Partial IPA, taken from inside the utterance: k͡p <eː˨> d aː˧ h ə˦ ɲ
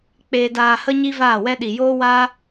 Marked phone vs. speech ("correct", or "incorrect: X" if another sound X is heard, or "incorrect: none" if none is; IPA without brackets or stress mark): incorrect: eː˧